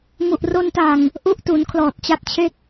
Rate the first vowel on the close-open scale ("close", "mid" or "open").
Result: close